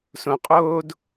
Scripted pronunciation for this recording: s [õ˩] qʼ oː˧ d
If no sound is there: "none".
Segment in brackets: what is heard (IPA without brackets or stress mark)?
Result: õ˩